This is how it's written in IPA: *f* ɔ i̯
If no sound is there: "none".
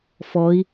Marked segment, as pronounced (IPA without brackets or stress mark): f